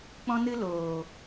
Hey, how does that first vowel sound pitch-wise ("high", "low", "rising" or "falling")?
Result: high